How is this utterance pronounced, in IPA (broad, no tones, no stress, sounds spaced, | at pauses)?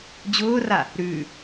d͡ʑ ʊː r a | ɾ ʉː